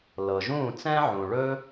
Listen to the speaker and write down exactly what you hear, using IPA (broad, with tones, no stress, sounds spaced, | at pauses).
l ɤ˩ ʒ ũː˥˩ t͡s ɛ̃ː˥ ʕ ũ˩ ɭ ɵ˥